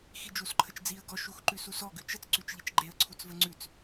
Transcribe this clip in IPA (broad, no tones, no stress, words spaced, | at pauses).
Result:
xid͡ʒus ǃʰət͡ʃd͡ziə̯ ɡɔ ʃuxǃʉsusɔ ɡʉt͡ʃət͡s ǀʉt͡ʃʎit͡ʃɡ͡ǃeə̯ ǀʰut͡svəŋ͡ǀʉt͡s